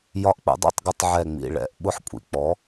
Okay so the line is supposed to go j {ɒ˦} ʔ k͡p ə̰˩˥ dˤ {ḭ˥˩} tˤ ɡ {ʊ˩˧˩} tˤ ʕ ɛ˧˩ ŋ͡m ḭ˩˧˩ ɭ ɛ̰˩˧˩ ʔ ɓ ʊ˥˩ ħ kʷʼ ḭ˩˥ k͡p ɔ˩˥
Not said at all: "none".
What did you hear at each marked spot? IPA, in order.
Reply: ɒ˦, ḭ˥˩, ʊ˦

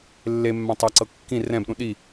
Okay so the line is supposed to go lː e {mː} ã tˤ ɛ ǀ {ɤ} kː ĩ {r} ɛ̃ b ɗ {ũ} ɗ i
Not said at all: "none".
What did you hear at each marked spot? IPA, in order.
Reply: mː, ɤ, r, ũ

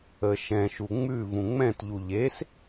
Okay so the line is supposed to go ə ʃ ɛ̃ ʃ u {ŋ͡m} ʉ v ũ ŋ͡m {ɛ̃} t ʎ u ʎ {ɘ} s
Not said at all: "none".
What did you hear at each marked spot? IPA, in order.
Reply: ŋ͡m, ɛ̃, e

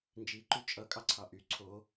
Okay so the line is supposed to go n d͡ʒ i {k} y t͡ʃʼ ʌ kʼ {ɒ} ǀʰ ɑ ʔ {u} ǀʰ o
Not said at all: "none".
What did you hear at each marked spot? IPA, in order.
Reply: ǃ, ɑ, y

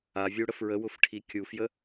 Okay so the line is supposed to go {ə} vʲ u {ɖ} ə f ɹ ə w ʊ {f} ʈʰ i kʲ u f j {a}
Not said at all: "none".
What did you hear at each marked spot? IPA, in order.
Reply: a, ɽ, f, ə

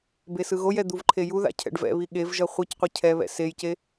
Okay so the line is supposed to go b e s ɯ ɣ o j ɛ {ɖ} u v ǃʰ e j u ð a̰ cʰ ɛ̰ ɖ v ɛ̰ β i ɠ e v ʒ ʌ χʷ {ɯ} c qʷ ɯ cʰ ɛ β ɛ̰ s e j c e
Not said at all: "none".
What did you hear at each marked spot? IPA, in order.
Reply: d̪, ɯ

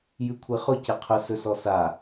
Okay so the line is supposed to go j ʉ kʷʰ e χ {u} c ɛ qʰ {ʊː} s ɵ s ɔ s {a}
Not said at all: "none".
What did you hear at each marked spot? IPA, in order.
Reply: ʊ, ʊ, a

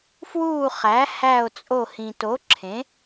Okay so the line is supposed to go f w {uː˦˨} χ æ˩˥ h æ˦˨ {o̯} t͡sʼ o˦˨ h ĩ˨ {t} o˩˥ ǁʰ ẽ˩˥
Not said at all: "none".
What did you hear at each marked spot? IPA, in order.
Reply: uː˦˨, o̯, t

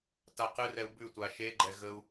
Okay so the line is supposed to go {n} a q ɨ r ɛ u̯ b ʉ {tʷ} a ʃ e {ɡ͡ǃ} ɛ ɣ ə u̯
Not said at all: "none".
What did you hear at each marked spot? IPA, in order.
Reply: t, tʷ, ɡ͡ǃ

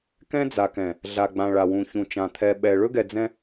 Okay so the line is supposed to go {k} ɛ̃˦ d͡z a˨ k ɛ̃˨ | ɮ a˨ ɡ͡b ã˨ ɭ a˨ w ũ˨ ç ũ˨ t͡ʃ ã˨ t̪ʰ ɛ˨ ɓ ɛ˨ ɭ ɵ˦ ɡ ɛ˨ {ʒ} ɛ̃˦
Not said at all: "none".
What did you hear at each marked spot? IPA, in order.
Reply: k, d͡z

